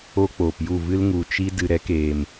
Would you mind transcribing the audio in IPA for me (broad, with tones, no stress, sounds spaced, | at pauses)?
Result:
o˧ k͡p oː˨ p j u˦˨ v ɨ˦ l ŋ u˨ t͡ʃ i˦ d ɨ˨ ɾ ɛ˨˦ k eː˨ m